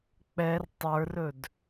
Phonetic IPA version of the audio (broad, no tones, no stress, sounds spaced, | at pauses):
k͡p ɛ r tˤ ə˞ r ɵ d